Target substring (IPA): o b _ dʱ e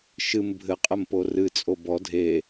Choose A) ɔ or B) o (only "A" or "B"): A